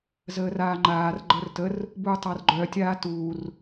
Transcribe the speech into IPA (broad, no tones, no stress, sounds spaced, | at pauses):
z əː r aː ŋ͡ǃ aː r ɡ͡ǃ əː r t ə r | b uː tˤ a r ɡ͡ǃ œ tʲ aː t uː r